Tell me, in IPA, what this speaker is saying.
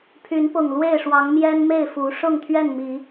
pʰy˨˦npʊ˨˩ŋ lwe˥˨ɪ̯ʂwɑ˨˦ŋmjɛ˦nme˥˨ɪ̯ fu˨˦ ʂʊ˥˨ŋt̪ʰɥɛ˥˨nmi˨˦

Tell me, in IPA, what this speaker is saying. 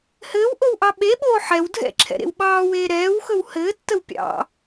hɘːwʔowʔɑ ɓeɓoː ħɛw dʱɛ̰ǁʰɛ̰ɾḛw ɓɑːweː ɾɛːwxɵw hɘːtːəw pʲɑ̰

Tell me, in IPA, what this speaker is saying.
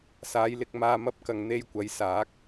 saː˨˧j lɪ˧k̚maː˧mɐ˥p̚kɐ˨ŋ n̪e˧jkʷɐ˨˥jsaː˨˥k̚

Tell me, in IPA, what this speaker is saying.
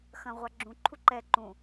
xɐ̃ʁʷa ɡ͡ǁũ ǃʰuǃɛ ǃũ

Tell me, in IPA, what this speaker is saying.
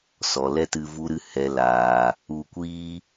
sɔ˨lɛ˦tɨ˧ vu˦ɾɨ˦ hɛ˨ laː˨ | u˧kʷiː˦

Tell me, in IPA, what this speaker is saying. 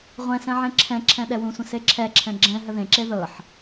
ʁʷɛ̃sɛ̃ ʕẽǁʰɛ̃ǁʰɛ̃ ɗɛwũsʷə̃ seǁʰɛǁʰɛ̃ ɡ͡ǁɛ̃ ɦəðẽǁe ðɤħ

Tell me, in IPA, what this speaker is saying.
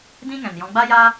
dĩ˦ŋɛ̃˨njɔ̃˧ ɡ͡ba˦jaː˦

